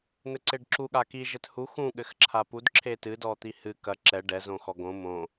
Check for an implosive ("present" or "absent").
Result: present